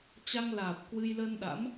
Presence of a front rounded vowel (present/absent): absent